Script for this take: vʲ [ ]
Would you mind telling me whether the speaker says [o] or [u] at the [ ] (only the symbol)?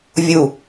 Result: u